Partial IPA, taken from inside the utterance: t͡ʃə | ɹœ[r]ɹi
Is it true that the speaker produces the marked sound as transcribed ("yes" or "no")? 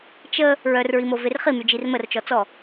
yes